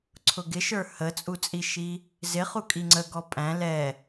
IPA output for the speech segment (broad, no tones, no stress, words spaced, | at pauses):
ǀʰʊɡɪʃə˞ hət͡sʼut͡sʼiʃi | zɪχu kʼiŋ͡ǀəɡɔ pʼæ̃ lɛ